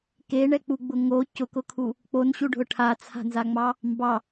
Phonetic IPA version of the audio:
keɳɛk͡puɡ͡bʊ ŋo cʊkʊkʰu | k͡ponɕuɖʱʊ ʈʰat͡sʰa̤nzaŋ͡mɑ | mbɑ

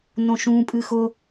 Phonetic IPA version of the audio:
nõʃũ pʼɨxʊ

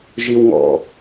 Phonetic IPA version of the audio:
ʒiw ŋɔ̰

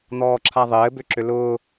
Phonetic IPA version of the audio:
n̪ɔːǁʰaðˤɘː bʏǁʏlʊː

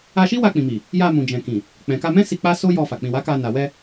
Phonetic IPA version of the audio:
a˧ʃi˦ wa˧k͡pĩ˨mi˨ | ja˧mũ˨d͡ʒɛ̃˨kĩ˨ | k͡pɛ̃˨ka˧mɛ̃˦ si˧k͡pa˦so˦ jɔ˧ fa˨ k͡pĩ˨wa˨˦ ka˧ na˨wɛ˧

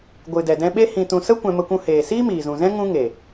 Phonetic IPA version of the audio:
ɡʷɨ˨dɛ˨dɛ̃˧ɓe˦ hĩ˧tũ˧ sə˦ kʷɛ̃˧mə˧kʷũ˧heː˨ siː˦miː˨zũ˨zɛ̃˦ ŋũ˦ ŋe˨

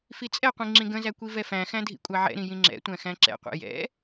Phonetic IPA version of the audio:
fit͡sʼɛqʷĩ ŋ͡ǁĩɡə̃zæ kʷivɛfæ̃xæ̃ dʱḭkʷʼaʕɛ̰ɾĩ jĩŋ͡ǁɛ̰tʷæ̃ xæ̃ǁɛ̰qʷɛ̰ jɛ̰

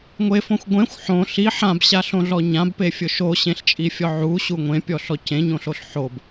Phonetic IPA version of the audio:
ŋʷefõxʷ ɡʷẽxʷ ħõ ɬi ħãbɕaɬõɮɔ ɲãbpefʲʊ ʃoɕẽɬt͡ʃʼifʲɔ ʕuɕu ŋʷẽpʲɔɬɔ cẽɲõɬoɬ ħob

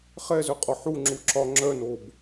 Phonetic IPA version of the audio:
χɛzœqʼɔ ħuŋ͡ǁu ǁɒ ŋ͡ǁœnob

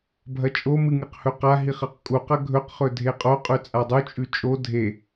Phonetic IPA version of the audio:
bʱɐt͡ʃʼomɨ ŋɨqhɵqaɦiχ ɐqkʼuqɐ ɡʱɵqχɵ dʱeqʼoqʼʉ t͡sʼadˤut͡ʃʼʉ t͡ʃʼo dʱe

